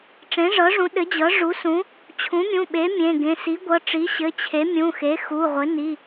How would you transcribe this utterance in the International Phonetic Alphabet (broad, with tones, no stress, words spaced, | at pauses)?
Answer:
ʈ͡ʂẽ˩˥ʐɤ˩˥ʐũ˩˥ ɗɘ˩˥d͡ʑɤ˩˥ ʐu˩˥sũ˩˥ | t͡ɕʰũ˩˥mʲũ˩˧˩ɓe˩˥ mʲẽ˩˧˩ɡẽ˩˧˩ si˩˥ɡʷɤ˩˧˩ ʈ͡ʂi˩˥ ɕɘ˩˧˩t͡ɕʰe˩˥ mʲũ˩˧˩xe˩˥xu˩˧˩ʁʷɘ˩˥ ni˩˧˩